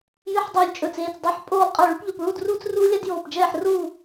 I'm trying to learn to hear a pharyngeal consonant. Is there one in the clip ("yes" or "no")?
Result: yes